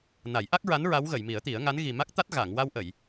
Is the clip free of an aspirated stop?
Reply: yes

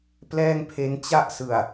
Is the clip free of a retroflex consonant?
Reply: yes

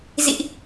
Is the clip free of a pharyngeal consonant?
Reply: yes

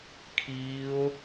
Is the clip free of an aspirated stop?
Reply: no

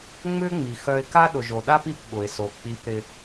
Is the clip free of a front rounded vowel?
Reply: no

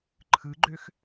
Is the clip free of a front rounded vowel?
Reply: no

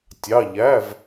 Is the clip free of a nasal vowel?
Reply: yes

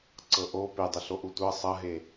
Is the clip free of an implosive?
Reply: yes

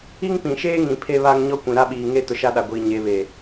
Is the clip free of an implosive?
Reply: no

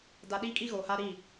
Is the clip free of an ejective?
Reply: no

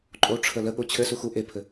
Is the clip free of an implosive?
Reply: no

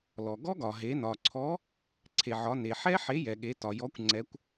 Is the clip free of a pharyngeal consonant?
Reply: no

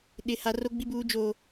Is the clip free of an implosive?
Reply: no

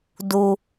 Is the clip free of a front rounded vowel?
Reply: yes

